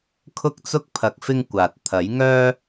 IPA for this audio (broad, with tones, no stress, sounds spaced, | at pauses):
kʰ ʊ˥ k̚ t͡s ʊ˥ k̚ pʰ ɐ˨ k̚ f ɪ˧ ŋ kʷ aː˨ t̚ t̪ʰ ɐ˨˥ j ŋ œː˥